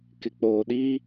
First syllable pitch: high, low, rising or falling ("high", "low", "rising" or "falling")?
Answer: low